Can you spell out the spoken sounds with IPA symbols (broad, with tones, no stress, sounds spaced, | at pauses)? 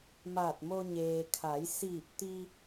m aː˧˩ t̚ m o˧ ɲ eː˩ kʰ a˩˧ j s iː˧˩ p̚ t̪ i˧